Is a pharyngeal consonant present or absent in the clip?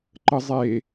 absent